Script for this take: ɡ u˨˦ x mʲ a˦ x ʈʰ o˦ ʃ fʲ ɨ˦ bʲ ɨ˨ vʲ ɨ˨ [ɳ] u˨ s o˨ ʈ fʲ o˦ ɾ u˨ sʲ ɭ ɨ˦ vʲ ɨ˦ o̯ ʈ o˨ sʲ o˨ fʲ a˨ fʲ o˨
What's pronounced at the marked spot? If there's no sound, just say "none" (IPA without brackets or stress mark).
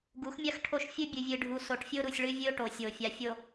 ɖʱ